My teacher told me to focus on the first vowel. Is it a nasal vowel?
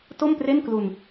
no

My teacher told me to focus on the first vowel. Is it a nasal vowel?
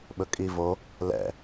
no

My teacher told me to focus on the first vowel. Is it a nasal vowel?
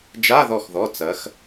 no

